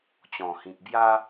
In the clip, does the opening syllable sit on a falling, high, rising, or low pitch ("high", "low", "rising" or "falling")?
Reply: low